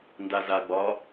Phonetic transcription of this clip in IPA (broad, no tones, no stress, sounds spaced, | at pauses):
n d a z a ɡ͡b ɒ